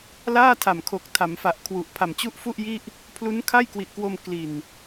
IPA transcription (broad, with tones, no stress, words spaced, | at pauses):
laː˥˩tʰa˨˩mkʰo˨˩k̚ tʰa˩˦mfa˨˩ʔkʰwu˨˩ʔ pʰa˨˩mt͡ɕu˥˩ʔ fu˥˩ʔ ji˥˩ʔ | pʰlu˦˥nkʰa˥˩jkwi˨˩ʔkwo˧m kli˨˩n